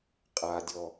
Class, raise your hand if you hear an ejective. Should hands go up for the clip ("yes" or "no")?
yes